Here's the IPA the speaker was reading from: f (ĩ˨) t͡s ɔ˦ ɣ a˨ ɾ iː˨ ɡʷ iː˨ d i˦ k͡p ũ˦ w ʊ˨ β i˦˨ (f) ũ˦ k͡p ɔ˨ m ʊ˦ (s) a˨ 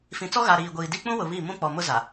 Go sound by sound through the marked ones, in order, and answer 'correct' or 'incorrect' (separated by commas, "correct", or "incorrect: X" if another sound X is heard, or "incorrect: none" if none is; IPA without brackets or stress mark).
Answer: correct, incorrect: m, incorrect: z